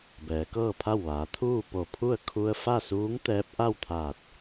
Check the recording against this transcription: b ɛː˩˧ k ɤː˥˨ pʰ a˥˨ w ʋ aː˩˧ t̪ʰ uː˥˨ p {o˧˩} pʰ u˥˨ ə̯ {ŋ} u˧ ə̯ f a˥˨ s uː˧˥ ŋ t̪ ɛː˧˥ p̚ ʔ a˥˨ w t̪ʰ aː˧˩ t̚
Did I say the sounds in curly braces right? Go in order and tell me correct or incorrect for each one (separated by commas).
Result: correct, incorrect